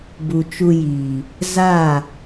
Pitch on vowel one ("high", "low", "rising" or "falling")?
low